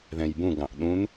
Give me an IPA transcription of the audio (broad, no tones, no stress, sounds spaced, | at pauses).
ð ɛ̃ j b ũ ɡ ɑ̃ ʔ ɗ ũ n